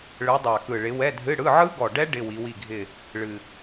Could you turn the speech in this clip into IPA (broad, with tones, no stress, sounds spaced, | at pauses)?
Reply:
ɭ ɯ˨˦ dˤ a˨˩ k ɯ˨˩ ɭ ɪ˨˦ w ɛ˧˥˧ dʱ ɨ˧˥˧ ɽ ɯ˧˥˧ ʕ ɯ˦˥ ɡ ɔ˨˩ ɖ ɛ˦˥ ɖ ɪ˧˥˧ w i˨˦ w i˦˨ ɡʱ ɪ˦˨ | ɭ ɨ˨˩